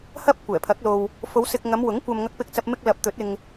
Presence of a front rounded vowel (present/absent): absent